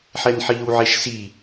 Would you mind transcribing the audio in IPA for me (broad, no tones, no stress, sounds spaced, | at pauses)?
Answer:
ħ ɛ n ħ iː w ʕ e ʃ s i